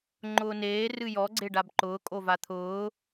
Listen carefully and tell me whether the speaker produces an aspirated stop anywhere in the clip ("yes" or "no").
yes